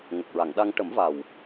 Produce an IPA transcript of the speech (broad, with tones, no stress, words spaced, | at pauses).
ŋə˨˩k̚ɹa˨˩˨ŋɗa˧ŋ ʈə˨˩˦mva˨˩w